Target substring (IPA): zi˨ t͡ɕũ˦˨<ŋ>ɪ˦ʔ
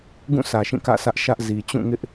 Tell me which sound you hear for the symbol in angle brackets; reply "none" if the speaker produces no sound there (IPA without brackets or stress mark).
ŋ